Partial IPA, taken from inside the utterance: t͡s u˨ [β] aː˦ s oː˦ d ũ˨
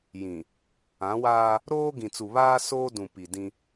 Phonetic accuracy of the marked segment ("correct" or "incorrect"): correct